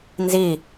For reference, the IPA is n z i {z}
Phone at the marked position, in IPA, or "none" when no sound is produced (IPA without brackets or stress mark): none